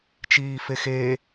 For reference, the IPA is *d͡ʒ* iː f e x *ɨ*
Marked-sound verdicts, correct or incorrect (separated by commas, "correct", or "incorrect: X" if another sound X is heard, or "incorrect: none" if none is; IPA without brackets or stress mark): incorrect: t͡ʃ, incorrect: e